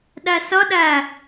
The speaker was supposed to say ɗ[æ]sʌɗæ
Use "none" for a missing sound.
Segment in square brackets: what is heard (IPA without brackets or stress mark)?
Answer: æ